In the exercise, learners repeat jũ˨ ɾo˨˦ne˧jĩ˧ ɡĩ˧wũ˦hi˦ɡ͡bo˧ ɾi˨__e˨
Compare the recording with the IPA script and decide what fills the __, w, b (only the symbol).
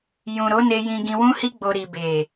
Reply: b